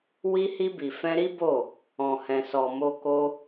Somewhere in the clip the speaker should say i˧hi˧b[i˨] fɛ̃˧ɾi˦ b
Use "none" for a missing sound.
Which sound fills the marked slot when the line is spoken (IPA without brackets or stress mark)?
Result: i˨